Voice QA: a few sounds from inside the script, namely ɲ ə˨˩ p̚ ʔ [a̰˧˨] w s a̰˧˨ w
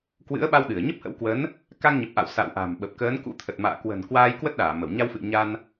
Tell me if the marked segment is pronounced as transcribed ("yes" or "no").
yes